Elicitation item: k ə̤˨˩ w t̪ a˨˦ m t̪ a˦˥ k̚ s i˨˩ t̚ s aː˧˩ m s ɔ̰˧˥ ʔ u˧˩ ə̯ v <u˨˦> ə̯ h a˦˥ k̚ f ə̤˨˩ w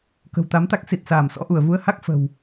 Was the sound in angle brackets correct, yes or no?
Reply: yes